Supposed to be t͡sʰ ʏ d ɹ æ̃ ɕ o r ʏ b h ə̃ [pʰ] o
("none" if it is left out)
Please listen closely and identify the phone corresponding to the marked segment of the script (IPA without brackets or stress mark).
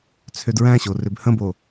b